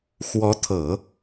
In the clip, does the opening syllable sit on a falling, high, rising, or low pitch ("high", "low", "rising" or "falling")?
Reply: rising